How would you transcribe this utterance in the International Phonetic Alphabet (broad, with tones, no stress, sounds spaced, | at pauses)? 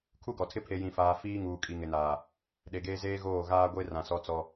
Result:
kʰ u˦ ɡ ɔ˨ tʰ ɪ˦ pʰ e˨ j ĩ˨ f aː˨ f iː˦ ŋ uː˨ kʼ i˨ ŋ ɪ˨ n aː˨ | ɗ e˨ ɡ eː˦ z eː˦ ɣ oː˦˨ ɣ aː˦ ɡʷ e˦ r ã˨ s ɔ˦ t͡s ɔ˦